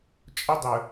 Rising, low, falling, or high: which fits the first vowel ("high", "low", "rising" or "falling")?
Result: high